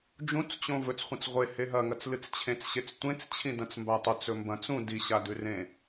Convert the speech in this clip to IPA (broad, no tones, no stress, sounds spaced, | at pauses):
d͡ʒ ũ t͡s t͡ɕ õ v ɵ t͡s χʷ ẽ t͡s ʁʷ e h e ɦ ɐ ŋ ɐ t͡s l ɨ t͡s t͡ɕʰ ẽ t͡s ɕ e t͡s tʷ ẽ t͡s t͡ɕʰ ĩ d ɐ̃ t͡s m b a tˤ ʉ t͡s ɵ m b ɐ̃ t͡s ũ d i ɕ a d ʉ r ẽ